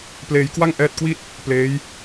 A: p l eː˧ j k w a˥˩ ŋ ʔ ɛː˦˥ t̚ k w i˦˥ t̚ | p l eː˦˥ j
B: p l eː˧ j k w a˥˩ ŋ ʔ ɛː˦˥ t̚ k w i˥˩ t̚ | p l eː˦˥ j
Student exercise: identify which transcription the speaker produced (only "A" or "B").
B